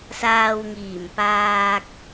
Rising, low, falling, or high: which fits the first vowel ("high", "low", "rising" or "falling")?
low